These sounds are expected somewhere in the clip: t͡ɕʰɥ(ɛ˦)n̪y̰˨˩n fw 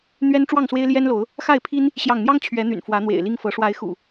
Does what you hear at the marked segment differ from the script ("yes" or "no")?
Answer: yes